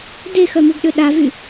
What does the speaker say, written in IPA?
d e x œ m u ɡ ɗ ø ɗ a v y

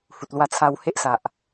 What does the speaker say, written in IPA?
h u˨ t̚ l w a˧ t͡sʰ a˧ w h e˦ ʔ s a˨ ʔ

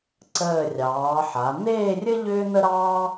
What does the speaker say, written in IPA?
ǀ əː˧˩ rʲ ɑː˩˧ ħ a˩˧ n̪ eː˥˧ rʲ ɘ˥ ʎ ʏː˥ n̪ ə˥ ɾ ɑː˥

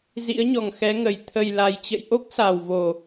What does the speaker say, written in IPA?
z ḭ˧˥ ə̯ ɲ ɔ˨˩ ŋ x ɛ˨˦ ŋ ə˨˩ j t̪ʰ ə˨˩ j l a˨˩ j t͡ɕ ə̰˧˨ j ʔ o˦˥ k̚ s a˨˩ w v o˨˩

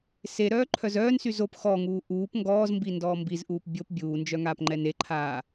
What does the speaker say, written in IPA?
s e ɾ œː ǃʰ œ z œː n s y z o p x ɔ ŋ uː ʔ uː p ŋ ɡ ɔː z m b i n d ɔː m b i z ʔ uː p bʲ o p bʲ uː n d͡ʒ œ ŋ aː p ŋ͡ǃ ɛ n e ǃʰ aː

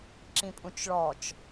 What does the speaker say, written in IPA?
ǁ ĩ pʼ ũ t͡ʃ ɭ ɔ t͡ʃ

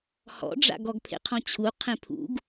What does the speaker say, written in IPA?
h ɔ̰ ɖ͡ʐ a̰ ɡ ɔ ɡ pʰ ḛ qʰ ɔ̃ t͡ɕʰ u qʰ ẽ pʰ ṵ ɡ

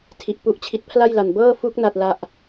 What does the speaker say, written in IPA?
tʰ i˨˩ ʔ p u˦˥ ʔ t͡ɕʰ i˦˥ t̚ pʰ l a˥˩ j l a˨˩ n b ɤː˥˩ f u˦˥ k̚ n a˥˩ t̚ l a˥˩ ʔ

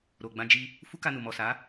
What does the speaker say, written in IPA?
ɾ o˨ ɡ͡b ã˧ d͡ʒ i˧ | f u˦ k a˧ n u˨ m ɔ˨ s a˨˦

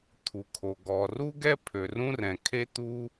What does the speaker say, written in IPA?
t̪ʰ u˩ kʰ o˩ ɡ ɔ˩ r u˥ ɡ ɛ˥ pʰ ø˩ r ũ˥ r ɛ̃˩ kʰ e˥ t̪ u˥

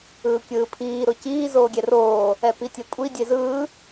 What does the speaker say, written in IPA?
ɯː kʲ ɯː pʰ iː ɾ o c iː z oː ɡʲ ɛ r oː | ɛ p i tʲ ɛ kʷʼ i dʲ e z ɯː

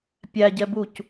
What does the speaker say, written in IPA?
pʲ æ ɟ ɛ b u c

